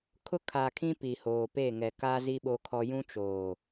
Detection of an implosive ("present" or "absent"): present